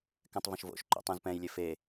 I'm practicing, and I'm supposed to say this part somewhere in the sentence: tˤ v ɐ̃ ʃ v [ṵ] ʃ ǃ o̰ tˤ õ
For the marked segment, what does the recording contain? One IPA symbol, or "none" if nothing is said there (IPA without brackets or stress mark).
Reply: o̰